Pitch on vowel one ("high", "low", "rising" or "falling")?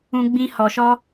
high